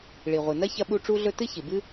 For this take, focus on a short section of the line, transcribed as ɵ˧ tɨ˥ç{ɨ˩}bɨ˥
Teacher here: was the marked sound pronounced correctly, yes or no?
yes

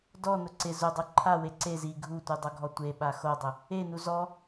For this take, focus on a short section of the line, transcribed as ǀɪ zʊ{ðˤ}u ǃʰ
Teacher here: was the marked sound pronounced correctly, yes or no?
no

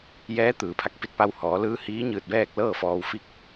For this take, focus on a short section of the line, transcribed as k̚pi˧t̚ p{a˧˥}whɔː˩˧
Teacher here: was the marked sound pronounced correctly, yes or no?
no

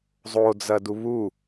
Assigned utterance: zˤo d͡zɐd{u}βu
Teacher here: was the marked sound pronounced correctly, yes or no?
yes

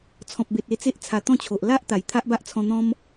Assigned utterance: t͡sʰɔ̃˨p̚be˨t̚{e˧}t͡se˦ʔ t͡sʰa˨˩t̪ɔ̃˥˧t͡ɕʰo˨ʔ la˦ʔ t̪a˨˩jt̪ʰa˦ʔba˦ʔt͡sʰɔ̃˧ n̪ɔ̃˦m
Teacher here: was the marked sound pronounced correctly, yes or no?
yes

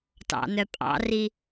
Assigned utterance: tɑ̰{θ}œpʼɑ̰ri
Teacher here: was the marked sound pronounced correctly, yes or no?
no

